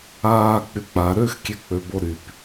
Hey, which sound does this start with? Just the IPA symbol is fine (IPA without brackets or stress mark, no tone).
aː